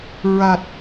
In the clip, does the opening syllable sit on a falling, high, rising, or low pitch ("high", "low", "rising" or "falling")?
low